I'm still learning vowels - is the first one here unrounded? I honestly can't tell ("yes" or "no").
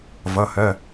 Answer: yes